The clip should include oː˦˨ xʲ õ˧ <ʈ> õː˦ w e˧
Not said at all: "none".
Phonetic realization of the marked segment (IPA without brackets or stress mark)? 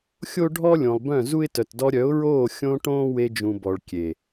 ʈ